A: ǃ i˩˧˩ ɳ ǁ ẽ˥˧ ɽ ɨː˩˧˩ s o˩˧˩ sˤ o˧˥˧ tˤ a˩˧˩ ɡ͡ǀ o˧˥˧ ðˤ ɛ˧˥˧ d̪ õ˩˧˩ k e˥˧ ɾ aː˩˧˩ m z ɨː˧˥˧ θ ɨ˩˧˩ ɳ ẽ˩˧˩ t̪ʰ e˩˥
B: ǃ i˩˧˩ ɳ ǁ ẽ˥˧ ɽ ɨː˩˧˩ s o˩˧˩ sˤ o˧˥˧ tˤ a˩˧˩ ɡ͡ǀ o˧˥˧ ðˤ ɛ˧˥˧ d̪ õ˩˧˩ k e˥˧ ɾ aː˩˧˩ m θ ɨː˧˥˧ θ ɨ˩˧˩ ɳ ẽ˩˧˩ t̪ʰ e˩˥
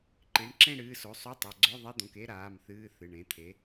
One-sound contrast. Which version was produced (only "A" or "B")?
B